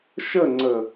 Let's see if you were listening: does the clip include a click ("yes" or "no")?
yes